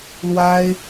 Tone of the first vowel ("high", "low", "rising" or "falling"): high